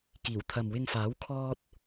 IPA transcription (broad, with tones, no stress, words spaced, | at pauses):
kiː˨˩wt̪ʰɐ˨mwɪ˧ŋfaː˨˥w kʰɔː˥t̚